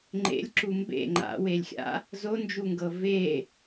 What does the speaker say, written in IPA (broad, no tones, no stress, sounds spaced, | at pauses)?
ŋ͡ǃ ḛ lʲ ǁ u m b ḛ ŋ͡ǃ a̰ w e lʲ xʲ a̰ | z o n d͡ʒ u ŋ ɡ ɤ v e